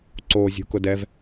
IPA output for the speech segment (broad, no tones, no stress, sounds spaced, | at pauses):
ǀ o zʲ ṳ k ʊ d ɛ v